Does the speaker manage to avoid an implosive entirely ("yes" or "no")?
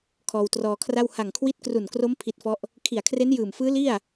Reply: yes